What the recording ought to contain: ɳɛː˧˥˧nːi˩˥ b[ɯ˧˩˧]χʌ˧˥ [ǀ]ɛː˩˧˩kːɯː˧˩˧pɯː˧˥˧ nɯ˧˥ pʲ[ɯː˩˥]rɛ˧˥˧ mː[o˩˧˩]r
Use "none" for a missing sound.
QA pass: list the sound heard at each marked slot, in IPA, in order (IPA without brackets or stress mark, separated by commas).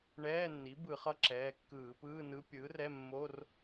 ɯ˧˩˧, ǁ, ɯː˩˥, o˧˥˧